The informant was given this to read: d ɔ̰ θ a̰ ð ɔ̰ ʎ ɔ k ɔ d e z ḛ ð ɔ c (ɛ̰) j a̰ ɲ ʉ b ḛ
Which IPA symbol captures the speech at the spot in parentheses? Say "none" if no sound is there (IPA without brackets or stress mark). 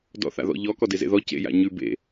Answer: ḛ